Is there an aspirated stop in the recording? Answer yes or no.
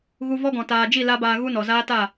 no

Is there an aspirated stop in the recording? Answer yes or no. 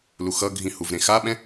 no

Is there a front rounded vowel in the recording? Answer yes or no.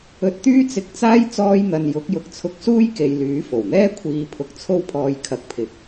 yes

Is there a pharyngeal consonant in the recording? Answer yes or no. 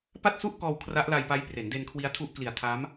no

